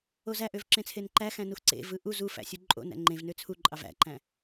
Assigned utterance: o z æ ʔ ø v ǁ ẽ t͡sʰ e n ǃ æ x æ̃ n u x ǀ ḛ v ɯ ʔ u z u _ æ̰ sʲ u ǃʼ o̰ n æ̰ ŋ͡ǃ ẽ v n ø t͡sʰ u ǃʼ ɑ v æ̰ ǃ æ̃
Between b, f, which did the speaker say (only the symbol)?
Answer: f